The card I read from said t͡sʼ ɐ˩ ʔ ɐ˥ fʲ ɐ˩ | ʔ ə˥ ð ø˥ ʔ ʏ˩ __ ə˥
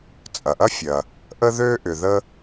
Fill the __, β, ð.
ð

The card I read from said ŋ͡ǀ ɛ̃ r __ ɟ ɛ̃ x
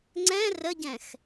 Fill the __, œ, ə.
ə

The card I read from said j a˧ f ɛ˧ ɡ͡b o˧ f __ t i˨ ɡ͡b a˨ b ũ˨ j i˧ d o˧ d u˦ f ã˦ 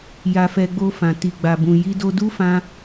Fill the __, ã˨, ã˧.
ã˨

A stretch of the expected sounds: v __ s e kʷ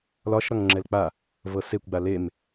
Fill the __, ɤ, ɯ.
ɤ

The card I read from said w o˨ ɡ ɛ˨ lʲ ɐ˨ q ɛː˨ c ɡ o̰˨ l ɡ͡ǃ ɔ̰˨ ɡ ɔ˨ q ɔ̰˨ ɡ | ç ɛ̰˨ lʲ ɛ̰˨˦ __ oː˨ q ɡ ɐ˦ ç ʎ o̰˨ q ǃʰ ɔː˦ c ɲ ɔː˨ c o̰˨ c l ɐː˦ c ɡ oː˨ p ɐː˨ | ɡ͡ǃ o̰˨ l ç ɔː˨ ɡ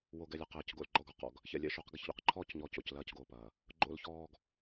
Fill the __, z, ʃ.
ʃ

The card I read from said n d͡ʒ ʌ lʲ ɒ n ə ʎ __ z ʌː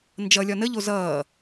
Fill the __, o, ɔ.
o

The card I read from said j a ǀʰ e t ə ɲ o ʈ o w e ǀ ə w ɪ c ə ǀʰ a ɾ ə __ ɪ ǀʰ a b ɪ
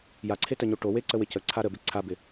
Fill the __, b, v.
b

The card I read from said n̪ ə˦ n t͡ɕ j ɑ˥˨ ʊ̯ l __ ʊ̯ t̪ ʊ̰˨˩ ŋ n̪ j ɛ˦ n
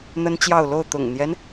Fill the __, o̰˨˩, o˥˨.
o˥˨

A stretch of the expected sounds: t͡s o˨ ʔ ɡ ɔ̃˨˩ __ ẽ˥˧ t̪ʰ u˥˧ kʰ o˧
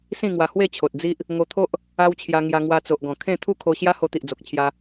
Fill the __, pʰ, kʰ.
kʰ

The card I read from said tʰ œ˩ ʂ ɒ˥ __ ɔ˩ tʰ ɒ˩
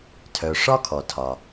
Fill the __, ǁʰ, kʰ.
kʰ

